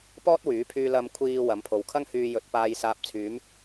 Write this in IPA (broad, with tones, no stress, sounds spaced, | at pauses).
p ɔː˥ t̚ w yː˨˥ pʰ yː˧ l ɐ˨ m kʷʰ iː˨ w ɐ˨˥ m pʰ o˨˧ w kʰ ɐ˥ ŋ h yː˧ j ɵ˨˥ t̚ p aː˧ j s aː˧ p̚ t͡sʰ yː˨˥ m